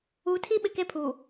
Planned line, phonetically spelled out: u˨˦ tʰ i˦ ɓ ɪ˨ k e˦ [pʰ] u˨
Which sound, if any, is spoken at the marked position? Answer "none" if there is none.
pʰ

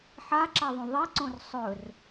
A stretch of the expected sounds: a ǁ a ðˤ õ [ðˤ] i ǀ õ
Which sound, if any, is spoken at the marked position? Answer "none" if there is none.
ðˤ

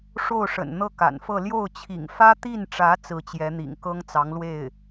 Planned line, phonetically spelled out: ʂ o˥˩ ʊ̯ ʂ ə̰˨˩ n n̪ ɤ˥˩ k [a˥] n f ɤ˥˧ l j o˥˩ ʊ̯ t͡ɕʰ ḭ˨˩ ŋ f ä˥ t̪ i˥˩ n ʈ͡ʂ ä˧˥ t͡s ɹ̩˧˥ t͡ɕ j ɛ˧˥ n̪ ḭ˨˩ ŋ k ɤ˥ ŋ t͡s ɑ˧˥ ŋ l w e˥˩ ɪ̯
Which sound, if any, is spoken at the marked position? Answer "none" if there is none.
a̰˨˩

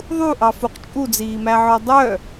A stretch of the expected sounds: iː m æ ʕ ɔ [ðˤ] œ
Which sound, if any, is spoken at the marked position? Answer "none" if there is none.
dˤ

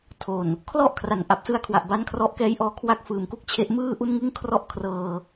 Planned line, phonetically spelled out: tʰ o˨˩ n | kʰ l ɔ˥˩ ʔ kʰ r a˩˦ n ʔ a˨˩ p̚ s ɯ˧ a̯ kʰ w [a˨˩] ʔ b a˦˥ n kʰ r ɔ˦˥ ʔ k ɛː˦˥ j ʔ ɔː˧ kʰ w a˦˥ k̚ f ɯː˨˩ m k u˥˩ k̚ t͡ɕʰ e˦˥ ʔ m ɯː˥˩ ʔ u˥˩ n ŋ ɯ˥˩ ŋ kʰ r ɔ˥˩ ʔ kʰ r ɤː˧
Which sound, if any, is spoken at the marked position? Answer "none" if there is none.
a˨˩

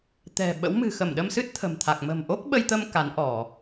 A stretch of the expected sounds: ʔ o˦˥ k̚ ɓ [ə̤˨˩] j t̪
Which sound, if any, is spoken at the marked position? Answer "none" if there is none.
ə˧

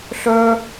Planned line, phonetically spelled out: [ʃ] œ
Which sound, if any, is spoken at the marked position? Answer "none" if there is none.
ɬ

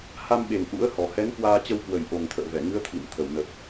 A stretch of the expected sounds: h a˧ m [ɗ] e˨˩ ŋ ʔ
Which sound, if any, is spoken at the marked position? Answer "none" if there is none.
ɓ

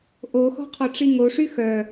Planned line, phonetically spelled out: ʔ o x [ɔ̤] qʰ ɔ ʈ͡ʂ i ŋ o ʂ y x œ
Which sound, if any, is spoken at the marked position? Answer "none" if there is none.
ɔ̤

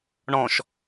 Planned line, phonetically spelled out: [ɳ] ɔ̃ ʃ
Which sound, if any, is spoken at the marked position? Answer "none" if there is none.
ɳ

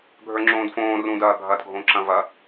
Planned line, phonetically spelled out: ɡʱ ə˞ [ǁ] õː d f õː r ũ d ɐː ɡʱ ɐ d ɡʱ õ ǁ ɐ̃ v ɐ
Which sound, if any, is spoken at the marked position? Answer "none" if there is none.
ŋ͡ǁ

